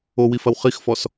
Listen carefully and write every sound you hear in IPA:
o w i f ɐ w χ i x f ɔ s

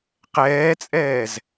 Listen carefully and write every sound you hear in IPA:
q ɛː t͡sʼ ɛː z

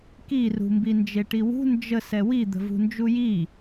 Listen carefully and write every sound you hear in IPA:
k i r ṳ m b i n d͡ʒ e ʈ i w ṳ n d͡ʒ ə s ɛ w i d̪ ə̤ v ṳ n d͡ʒ u j i

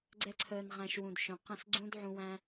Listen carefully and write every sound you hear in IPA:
ɡ͡ǀ ɛ˦ ǀʰ əː˧ n ʁ æ̃˧ ʃ w ũ˨ d ʃ œ̃˨ q ə̃˦˨ s ɡ͡ǀ ũ˦ d ʕ ũ˧ w æ̃˦

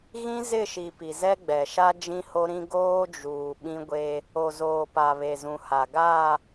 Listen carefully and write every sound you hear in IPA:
ɣ ĩ˦ z ɪ˦˨ ʃ i˨ p i˨ z ɛ˦ ɡ͡b ɛ˨ ʃ a˦ d͡ʒ ĩ˦ h o˦ ɾ ĩ˦ ɡ oː˦ d͡ʒ uː˨ ɓ ĩ˦ ɡʷ e˦ | o˨ z oː˨ p a˨ β e˨ z ũ˨ h a˨ ɡ a˦˨

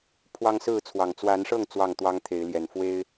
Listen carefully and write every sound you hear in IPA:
pʰ w ɑ˦ ŋ s ɹ̩˥˨ t͡sʰ w ɑ˨˩ ŋ t͡s w a˨˦ n ʂ ɤ˥˨ ŋ t͡s w ɑ˥˨ ŋ t̪ w ɑ˦ ŋ t̪ʰ e˨˦ ɪ̯ l j ɛ˨˩ n f w e˦ ɪ̯

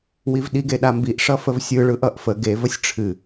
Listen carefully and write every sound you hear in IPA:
w i v ɗ i ɡ e ɗ a m b i ʔ ʂ ʌ f ə v sʲ ɯ ɭ ɯ ʔ ʌ ʔ f ə ɡ e v ə sʲ ʈ͡ʂʰ ɨ

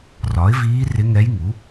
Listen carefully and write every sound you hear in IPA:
r ɒ˩˥ ɪ̯ v iː˧˥ r ɪ˧˥ ŋ ɛ˧˥ j ŋ u˩˥

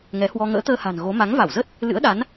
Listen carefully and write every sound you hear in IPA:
ŋ ɛ˨˦ h w ɔ˧ ŋ ə̰ː˧˥ t̪ əː˧ h a̤˨˩ n ɣ o˨˦ m a˨˦ ŋ v a˧˩ w z ə˦˥ t̚ | l ɨ̰˧˥ ə̯ ɗ a˨˦ n

